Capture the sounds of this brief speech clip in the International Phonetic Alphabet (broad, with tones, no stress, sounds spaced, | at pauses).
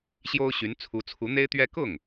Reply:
ɕ j o˥ ʊ̯ ɕ y˧˥ n t͡sʰ u˧˥ t͡sʰ u˧˥ n̪ e˥ ɪ̯ t̪ ɥ ɛ˥ k ʊ˥˩ ŋ